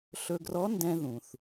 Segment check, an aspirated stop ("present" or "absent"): absent